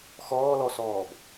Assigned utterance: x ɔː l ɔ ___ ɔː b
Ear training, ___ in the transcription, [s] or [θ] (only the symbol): s